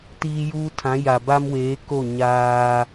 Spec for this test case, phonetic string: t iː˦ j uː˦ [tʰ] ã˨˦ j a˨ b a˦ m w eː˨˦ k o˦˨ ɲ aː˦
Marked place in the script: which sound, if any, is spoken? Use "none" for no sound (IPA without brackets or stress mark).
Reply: tʰ